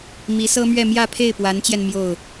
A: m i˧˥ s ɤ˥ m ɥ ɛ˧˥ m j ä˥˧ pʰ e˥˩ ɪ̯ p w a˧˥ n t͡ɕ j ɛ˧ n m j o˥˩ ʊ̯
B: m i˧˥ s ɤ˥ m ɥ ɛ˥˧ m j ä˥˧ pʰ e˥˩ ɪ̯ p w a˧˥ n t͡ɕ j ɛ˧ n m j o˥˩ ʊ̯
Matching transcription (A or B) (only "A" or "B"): B